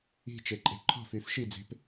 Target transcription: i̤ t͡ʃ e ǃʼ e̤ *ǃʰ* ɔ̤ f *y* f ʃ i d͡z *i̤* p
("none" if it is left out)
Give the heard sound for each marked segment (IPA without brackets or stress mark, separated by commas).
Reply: ǃʰ, y, e̤